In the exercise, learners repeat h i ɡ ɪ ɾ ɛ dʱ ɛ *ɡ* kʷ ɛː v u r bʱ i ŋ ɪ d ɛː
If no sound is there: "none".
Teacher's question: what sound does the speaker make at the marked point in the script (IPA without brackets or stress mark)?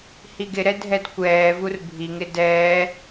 d